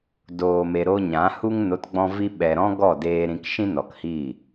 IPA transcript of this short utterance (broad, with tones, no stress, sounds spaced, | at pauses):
d oː˨ m e˨ ɾ o˧ ɲ ã˨˦ h u˦ ŋ n o˨˦ t ɡ͡b ɔ̃˧ v i˧ ɓ ɛ˨ ɾ ɔ̃˦ ɡ ɔ˦˨ d eː˧ ɾ ĩ˦ k ʃ ĩ˦ n ɔ˨ k h iː˦˨